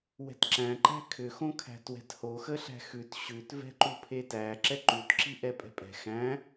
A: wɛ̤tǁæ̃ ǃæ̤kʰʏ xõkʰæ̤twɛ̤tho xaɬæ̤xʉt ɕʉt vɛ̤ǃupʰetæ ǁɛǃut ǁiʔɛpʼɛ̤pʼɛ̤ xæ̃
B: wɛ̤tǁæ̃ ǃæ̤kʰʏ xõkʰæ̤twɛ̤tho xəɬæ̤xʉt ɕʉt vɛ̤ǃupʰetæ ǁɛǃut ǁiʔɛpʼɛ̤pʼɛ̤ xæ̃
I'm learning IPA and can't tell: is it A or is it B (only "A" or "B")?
B